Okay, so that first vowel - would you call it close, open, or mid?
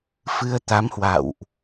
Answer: close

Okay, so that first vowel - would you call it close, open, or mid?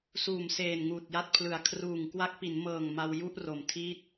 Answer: close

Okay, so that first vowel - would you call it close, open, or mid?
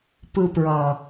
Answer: close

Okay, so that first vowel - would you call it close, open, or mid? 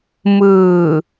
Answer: close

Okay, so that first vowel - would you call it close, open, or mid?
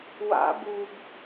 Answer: open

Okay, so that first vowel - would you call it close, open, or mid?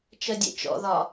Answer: mid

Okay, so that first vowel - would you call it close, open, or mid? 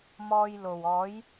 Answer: mid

